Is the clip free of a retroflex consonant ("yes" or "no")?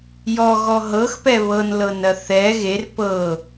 yes